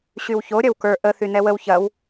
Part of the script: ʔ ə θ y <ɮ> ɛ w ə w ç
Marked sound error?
yes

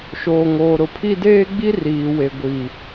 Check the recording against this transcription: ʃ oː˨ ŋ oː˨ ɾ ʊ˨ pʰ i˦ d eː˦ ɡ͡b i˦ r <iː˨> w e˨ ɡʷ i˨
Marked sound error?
no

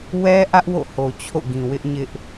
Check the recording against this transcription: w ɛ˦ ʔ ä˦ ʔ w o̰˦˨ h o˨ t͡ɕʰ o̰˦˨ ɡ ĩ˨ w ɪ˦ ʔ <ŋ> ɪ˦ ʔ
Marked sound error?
yes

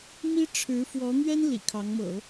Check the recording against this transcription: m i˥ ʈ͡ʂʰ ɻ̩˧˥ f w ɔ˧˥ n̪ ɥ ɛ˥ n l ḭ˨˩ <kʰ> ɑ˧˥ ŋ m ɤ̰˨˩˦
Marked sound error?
no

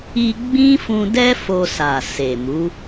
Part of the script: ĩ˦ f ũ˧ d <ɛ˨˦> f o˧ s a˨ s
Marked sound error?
yes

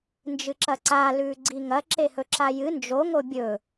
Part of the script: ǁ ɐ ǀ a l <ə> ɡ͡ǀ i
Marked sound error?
yes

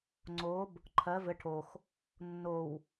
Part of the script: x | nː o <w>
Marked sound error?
no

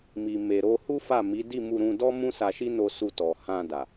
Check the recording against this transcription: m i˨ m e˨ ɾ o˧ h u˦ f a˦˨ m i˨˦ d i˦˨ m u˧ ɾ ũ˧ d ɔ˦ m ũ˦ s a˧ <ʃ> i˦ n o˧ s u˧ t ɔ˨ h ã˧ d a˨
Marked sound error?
no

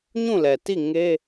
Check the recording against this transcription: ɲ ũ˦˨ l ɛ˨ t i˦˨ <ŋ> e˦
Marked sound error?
no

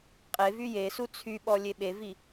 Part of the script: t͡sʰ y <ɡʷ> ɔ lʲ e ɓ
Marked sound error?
yes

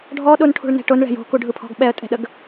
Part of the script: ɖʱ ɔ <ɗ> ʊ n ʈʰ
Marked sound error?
no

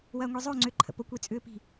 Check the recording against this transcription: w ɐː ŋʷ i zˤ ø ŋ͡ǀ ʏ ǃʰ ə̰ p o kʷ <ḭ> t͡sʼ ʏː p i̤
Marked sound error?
yes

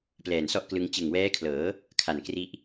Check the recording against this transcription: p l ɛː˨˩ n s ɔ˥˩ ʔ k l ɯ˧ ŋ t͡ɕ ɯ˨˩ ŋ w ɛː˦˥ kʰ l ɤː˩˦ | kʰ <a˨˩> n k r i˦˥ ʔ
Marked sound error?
no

